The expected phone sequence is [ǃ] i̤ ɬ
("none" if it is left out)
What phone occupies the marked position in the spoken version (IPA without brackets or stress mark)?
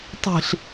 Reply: tˤ